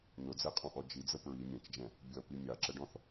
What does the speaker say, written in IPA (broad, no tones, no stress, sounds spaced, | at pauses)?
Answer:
n ʊ d͡z ɛ qʼ ɔ̃ ʔ ɔ d͡ʒ i d͡z ə p ɹ i mʲ ɛ̃ t͡ʃ d͡ʒ ɛ̃ | bʲ ʌ p i mʲ ɑ ǁ ə ɖ ɔ̃ θ